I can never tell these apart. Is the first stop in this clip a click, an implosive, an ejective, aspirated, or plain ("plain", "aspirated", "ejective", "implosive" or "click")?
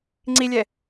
click